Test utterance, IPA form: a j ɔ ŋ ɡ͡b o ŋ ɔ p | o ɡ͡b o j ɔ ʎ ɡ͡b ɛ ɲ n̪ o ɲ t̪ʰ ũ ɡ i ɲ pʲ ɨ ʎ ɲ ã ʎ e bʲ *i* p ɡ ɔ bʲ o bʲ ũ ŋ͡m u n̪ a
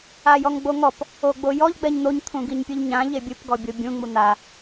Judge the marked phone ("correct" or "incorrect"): incorrect